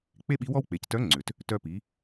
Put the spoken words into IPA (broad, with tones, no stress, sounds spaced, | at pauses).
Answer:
k͡p e˥ ɓ i˧˥ w ɔ˥ w k͡p e˩˧ c t œ˧˥ ŋ͡ǀ ʏ˩ t | t œ˧ p i˩˧